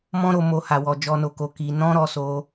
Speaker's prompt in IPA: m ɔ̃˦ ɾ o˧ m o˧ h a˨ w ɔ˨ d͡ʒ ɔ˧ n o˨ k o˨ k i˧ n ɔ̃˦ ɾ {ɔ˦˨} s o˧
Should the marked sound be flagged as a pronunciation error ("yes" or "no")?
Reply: yes